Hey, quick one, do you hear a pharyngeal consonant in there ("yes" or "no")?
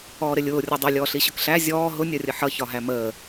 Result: yes